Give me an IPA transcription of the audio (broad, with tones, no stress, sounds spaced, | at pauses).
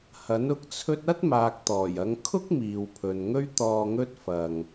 h ɐ˨˥ n ʊ˧ k̚ t͡sʰ ɵ˥ t̚ ɐ˥ t̚ m aː˨ k̚ t̪ ɔː˨˩ j ɐ˨˧ ŋ kʰ ʊ˥ k̚ m iː˨ w pʰ ɵ˨ n ŋ ɵ˥ ɥ t̪ ɔː˧ ŋ ɵ˥ t̚ f ɐ˧ ŋ